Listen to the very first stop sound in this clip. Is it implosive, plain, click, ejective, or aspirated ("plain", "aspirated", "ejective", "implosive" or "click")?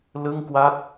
plain